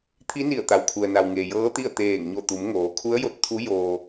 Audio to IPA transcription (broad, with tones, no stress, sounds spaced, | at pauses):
t̪ʰ i˧˥ n i˧˩ ə̯ t̪ a˩ w kʰ u˩ ə̯ n a˩ w ŋ eː˩ j ɤː˧˥ t̪ i˥˨ ə̯ t̪ eː˧˩ ŋ ɲ o˧˩ t̪ u˩˧ m ŋ oː˩˧ kʰ u˧˥ ə̯ j o˧ t̚ t̪ʰ u˧˥ j oː˧